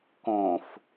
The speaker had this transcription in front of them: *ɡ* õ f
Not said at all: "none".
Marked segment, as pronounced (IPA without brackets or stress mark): k